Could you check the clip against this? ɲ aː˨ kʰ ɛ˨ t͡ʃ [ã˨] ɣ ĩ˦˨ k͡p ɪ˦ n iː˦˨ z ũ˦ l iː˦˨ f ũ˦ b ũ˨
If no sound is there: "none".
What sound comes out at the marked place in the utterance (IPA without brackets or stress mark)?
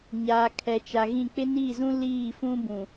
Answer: a˨